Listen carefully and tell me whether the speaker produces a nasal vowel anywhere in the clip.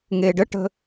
no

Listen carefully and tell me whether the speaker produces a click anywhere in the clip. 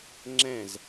yes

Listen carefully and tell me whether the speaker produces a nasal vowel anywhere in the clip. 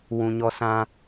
yes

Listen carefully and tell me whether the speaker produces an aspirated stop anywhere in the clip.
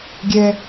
no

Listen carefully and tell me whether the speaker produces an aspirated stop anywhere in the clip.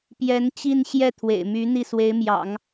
yes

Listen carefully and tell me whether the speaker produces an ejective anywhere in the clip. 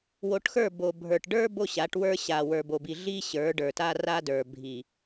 no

